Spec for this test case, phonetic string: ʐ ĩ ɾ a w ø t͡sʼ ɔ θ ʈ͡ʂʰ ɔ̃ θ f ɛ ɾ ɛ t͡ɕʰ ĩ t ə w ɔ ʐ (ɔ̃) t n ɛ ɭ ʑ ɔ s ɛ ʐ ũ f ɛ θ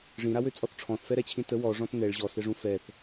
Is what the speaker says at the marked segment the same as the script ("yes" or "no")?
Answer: yes